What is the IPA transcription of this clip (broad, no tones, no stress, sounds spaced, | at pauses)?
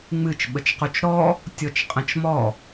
ŋ͡m ɨ t͡ʃ ɓ ə t͡ʃ q u t͡ʃ ɾ ɔ | tʲ ɔ t͡ʃ qʼ ə̃ t͡ʃ m ɔ